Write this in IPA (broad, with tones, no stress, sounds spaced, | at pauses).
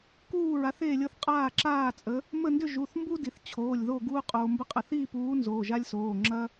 k uː˥˨ ɹ a˨˥ θ eː˥˨ lʲ ɤ˦ θ qʼ aː˥˨ ǁ aː˥˨ t͡sʼ ə˨˥ | m ə˥˨ n d ʏ˥˨ ʒ u˩˧˩ θ m b u˦ d i˩ θ t͡ɕʰ oː˩˧˩ lʲ ð o˥˨ ɡ uː˦ qʼ oː˩ m b ə˨˥ qʼ ə˩ θ iː˥˨ p uː˨˥ n z oː˩˧˩ ʒ a˦ lʲ s oː˩˧˩ ŋ͡ǁ ɐ˦